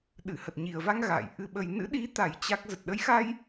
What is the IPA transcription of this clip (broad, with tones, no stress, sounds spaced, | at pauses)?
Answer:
ɗ ɨ˧˩ h ə˨˩ t̚ ɲ i˨˩ ə̯ v a˧ ŋ ɣ a̰ː˧˨ j ʔ ɨ˧ ɓ ə˧ j n ɨ̰˧˥ ɗ i˨˦ t̪ a˨˩ j t͡ɕ a˦˥ k̚ z ə˨˩ t̚ ɗ ə˨˦ j x a˧ j